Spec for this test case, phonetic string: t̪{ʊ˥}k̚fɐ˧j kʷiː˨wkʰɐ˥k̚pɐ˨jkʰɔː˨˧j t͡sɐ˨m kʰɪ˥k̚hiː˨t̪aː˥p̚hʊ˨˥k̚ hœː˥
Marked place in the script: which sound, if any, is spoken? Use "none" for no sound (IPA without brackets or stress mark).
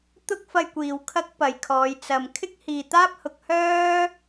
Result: ʊ˥